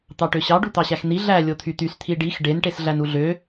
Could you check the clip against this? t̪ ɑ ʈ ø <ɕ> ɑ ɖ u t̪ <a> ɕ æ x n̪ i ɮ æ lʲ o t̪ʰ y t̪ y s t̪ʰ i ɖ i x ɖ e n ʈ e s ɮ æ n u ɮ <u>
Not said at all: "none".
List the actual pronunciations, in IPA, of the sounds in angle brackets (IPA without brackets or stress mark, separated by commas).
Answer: ɕ, ɑ, ø